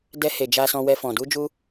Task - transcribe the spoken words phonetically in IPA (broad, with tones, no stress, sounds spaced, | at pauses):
d ɛ˧ h e˨ d͡ʒ a˨ s ɔ̃˨ w ɛ˨ f ɔ̃˨ d u˧ d͡ʒ u˧